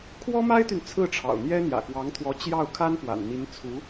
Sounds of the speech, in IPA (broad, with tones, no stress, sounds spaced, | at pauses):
kʰ w ɔ˥ m a˥ ɪ̯ t̪ y˨ n t͡sʰ ɹ̩˥˩ ʈ͡ʂʰ ɑ̰˨˩ ʊ̯ n̪ j ɛ˥ n̪ j ä̰˨˩ k w ɑ˧˥ ŋ t̪ʰ w ɔ˧˥ t͡ɕ j ɑ˥˩ ʊ̯ kʰ a˥ n p w a̰˨˩ n n̪ i˧˥ n t͡sʰ u˧˥